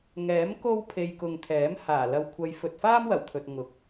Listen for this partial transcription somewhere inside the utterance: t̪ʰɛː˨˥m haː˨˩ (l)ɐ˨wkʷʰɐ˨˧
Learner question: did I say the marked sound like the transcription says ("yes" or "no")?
yes